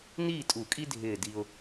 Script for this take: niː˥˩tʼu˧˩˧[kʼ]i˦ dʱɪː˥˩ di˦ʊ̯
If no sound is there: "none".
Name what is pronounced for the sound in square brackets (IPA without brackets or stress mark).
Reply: kʼ